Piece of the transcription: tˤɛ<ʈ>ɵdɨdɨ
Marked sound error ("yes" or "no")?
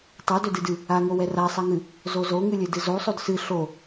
yes